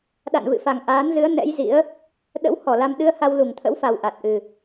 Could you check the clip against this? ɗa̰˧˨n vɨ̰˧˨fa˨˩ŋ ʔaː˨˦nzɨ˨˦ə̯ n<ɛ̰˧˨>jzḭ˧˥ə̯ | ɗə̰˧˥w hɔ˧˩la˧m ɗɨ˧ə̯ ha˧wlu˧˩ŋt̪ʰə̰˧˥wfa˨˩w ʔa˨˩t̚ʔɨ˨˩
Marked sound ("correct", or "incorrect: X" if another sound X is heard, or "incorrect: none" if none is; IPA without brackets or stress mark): incorrect: ɛ̰˧˥